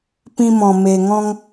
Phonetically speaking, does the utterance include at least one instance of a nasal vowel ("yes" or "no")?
yes